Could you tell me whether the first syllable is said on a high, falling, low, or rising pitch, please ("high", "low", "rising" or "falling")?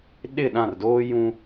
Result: falling